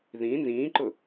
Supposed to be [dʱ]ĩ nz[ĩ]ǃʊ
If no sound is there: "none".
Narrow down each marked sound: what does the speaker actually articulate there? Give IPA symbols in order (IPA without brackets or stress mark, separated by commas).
ð, ĩː